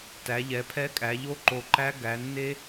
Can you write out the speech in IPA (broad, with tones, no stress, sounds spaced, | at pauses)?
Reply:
t æ˩˧ ʎ ɛ˩˧ pʰ ɛ˦˥ kʼ æ˩˧ ʎ o˦˥ ǃ o˨˩ ǃ æ˦˥ ɡ æ˩˧ nː e˦˥